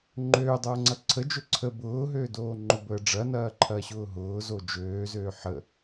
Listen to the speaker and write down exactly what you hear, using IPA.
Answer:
ŋ͡ǃ øː dˤ ɐː ŋ͡ǀ ɐ ǀʰ ə d͡ʒ ø ǀʰ ə b ʊː ɦ øː d oː ŋ͡ǃ ʊ b əː ɖ͡ʐ ɐ n ɐː ǃʰ ɐː ɕ ʊː ɦ ʊː z o d͡ʒ øː z øː ħ ə

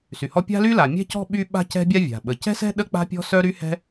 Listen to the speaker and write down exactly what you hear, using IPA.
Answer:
s y˩ h ɔ˥ pʲ a̤˥ l y˥ l a˩ mʲ ɛ̤˥ c ɔ̤˥ ɓ y˥ ɓ a̤˥ c ɛ̤˥ bʲ a˥ vʲ a̤˩ ɓ ə˩ c ɛ̤˥ s ɛ̤˥ ɗ ə˥ k͡p a̤˥ pʲ ɔ̤˥ s œ˥ ɾ y˥ h ɛ̤˥

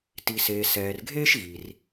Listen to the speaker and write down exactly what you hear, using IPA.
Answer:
t i˩ s eː˩ s ɛː˩ r ɡʱ eː˥ ʃ ɣ i˩ r

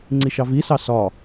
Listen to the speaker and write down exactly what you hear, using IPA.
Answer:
ŋ͡ǀ i ʃ ɑ v i s ɑ s ɒ

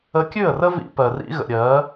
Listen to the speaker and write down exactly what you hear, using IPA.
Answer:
ə˧ kʲ ʉ˦˨ ə̯ r ə˦ v ḭ˧ p ɜ˨ r ḭ˧ ɣ ə̰˨ ɾʲ ɜ˨˦

